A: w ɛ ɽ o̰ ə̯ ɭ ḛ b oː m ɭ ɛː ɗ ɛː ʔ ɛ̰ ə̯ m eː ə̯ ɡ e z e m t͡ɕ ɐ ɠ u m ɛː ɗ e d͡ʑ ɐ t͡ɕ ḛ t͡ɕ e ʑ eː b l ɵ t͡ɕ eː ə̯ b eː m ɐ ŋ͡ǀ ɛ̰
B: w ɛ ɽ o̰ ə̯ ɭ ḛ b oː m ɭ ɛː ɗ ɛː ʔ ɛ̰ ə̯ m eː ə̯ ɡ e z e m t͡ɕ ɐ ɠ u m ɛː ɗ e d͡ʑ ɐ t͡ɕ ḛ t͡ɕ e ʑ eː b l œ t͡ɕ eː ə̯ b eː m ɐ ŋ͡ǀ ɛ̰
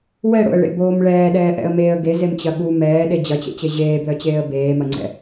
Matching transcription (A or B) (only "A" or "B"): B